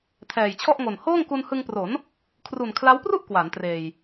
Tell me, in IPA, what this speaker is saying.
tʰɛː˨˩jt͡ɕʰɔ˥˩ʔŋo˨˩n hoː˥˩ŋku˧nhɯ˧ŋpro˩˦n | kʰru˨˩nkʰla˦˥wpru˥˩ʔ kwa˩˦ntreː˨˩j

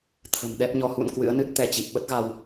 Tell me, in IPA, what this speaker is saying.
t̪ʰə̤˨˩mɗɛ˦˥p̚ɲɔ˧ hṵ˧˨n kwɨ̰˧˥ə̯nɨ˦˥t̚t̪ɛ˧t͡ɕi˨˩p̚ ɓə˦˥t̚ɣa˧w

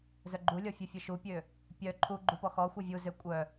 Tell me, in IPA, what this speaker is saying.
zœɡ͡ǃulʲɔ fʲœfʲœʃupʲø | pʲœ ǃʰu ɡ͡ǃupɔxɔxʷœ vʲuzø kʷʼœ

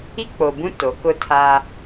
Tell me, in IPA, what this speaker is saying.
i˦k͡po˨bũ˦ to˨˦kʊ˦tʰa˦

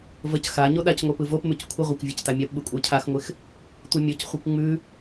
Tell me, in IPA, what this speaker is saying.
vəc xa ɲoɗacŋʷə˞ pɯvopmʉc kʷʰɪʁʷakʷ vʲə˞ctamʲapɓɯ kʷʼə˞cʰaxŋʷɪx | tʷəmʲocχʷɯkʷ ŋ͡mʉ

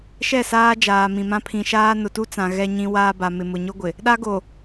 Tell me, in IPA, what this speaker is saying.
ʃɛ˦˨saː˦ d͡ʒaː˨mĩ˨mã˦ pʰĩ˨ʃaː˦ nʊ˨tu˦t͡sã˨ ɣɛ˦ɲĩ˦ waː˦ba˨mɪ˨ mʊ˨ɲʊ˦ɡʷɪ˨ | ɗa˦ɡo˨

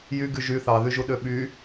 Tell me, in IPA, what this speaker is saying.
jyɡy ʒy θɑðyʒuɗø ɓy

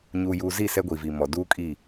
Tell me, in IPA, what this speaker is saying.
ɲuː˨juː˨zi˦˨ sɛ˦ɡʷi˨vi˨mɔ˨ duː˦kʼi˦˨

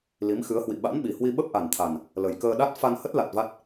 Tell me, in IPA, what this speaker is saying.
li˨˦mxɨ˨˦ə̯hwḭ˧˨ ɓa̰˧˥nɓi˨˩hwi˧ ɓə˦˥p̚ʔa˨˩nt̪ʰa˨˩n | lə˨˩jkəː˧ ɗa˦˥t̚ fa˧nhə˦˥t̚ la˨˩t̚ va˦˥t̚

